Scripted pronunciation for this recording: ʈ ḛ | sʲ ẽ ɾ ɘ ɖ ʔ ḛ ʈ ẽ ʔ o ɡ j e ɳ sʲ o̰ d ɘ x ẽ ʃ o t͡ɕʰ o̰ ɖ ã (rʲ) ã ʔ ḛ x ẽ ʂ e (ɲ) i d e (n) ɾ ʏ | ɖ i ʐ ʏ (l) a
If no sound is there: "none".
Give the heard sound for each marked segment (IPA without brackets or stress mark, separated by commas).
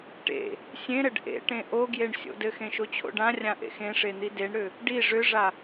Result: rʲ, n̪, ɳ, ʐ